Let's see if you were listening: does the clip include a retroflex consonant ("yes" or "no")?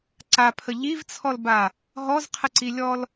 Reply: no